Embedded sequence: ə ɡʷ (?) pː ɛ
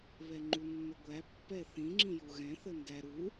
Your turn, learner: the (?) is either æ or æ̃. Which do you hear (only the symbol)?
æ